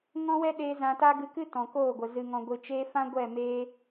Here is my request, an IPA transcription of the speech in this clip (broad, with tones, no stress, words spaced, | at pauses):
ŋɔ̃˦wɛ˦ɗeː˧ zã˧ta˦ ɡɨ˧kɨ˦ tɔ̃˨koː˦˨ɡʷə˨ zɨ˨ ŋɔ̃˨ɡʷɨ˨ t͡ʃeː˧fã˦ ɡʷɛ˦˨meː˧